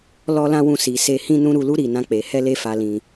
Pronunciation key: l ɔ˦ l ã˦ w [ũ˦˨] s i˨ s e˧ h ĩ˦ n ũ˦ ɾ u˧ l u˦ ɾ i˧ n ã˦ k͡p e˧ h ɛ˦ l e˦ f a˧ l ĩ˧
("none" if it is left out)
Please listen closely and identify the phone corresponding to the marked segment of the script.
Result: ũ˦˨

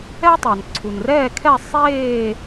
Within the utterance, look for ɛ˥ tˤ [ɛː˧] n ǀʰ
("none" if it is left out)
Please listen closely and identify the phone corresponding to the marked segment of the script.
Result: ɛ˧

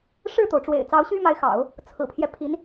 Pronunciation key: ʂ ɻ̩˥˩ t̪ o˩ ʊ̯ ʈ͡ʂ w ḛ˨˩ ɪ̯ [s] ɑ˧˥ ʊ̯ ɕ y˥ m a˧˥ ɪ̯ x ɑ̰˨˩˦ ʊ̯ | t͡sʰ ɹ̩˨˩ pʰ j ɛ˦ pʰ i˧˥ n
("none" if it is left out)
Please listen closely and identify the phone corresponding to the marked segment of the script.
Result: t͡s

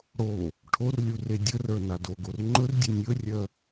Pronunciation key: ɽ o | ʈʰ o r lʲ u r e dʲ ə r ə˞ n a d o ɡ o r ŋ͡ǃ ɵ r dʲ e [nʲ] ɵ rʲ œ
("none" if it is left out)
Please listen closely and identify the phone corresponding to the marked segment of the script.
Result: nʲ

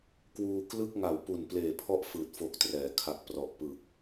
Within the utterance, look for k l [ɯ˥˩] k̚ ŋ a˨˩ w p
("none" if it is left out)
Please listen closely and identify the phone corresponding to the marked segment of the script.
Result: ɯ˥˩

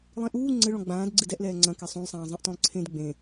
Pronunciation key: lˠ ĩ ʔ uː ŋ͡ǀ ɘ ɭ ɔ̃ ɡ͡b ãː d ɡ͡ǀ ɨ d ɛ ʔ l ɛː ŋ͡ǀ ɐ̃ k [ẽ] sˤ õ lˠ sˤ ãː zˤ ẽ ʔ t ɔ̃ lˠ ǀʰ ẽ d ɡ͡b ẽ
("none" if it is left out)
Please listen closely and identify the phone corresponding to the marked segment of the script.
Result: e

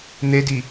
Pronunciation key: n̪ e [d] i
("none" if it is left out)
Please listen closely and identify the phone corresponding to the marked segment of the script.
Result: d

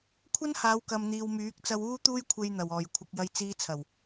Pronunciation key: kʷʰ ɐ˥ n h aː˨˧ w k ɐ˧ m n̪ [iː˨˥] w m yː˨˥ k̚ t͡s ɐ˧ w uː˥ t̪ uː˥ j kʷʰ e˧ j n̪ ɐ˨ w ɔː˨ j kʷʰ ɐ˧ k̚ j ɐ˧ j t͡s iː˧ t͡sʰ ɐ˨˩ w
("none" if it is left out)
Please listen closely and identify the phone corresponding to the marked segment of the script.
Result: iː˧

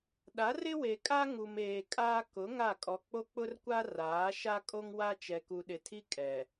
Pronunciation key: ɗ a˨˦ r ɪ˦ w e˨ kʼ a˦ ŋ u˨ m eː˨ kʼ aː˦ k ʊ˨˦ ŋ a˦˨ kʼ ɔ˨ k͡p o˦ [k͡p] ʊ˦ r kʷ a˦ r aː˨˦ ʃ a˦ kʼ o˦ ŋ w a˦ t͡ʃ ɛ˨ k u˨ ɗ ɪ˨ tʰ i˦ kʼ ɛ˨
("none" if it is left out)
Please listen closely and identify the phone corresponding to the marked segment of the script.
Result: k͡p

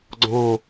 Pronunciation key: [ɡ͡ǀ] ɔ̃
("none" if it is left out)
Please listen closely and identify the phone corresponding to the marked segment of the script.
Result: ɡ͡ǀ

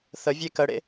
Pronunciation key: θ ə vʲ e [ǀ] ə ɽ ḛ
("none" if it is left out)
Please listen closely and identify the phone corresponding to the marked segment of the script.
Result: k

